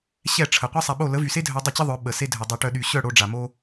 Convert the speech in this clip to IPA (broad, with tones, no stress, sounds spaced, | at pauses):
ɕ ɛ˦˨ ʈ͡ʂʰ ə˨ qʷ e˦ sˤ a˨ ɓ o˦˨ l ə˨˦ v y˨ s e˦ dʱ œ˧ dˤ ə˦˨ t͡ɕ ə˦ ðˤ œ˨˦ ɓ ə˨ s e˦ dʱ œ˨ dˤ œ˧ ʈ œ˧ ɗ y˨ ɕ œ˦˨ ɽ o˧ ɖ͡ʐ a˨ m o˦